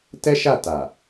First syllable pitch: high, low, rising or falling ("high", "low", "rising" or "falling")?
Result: high